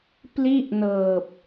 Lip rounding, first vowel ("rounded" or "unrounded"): unrounded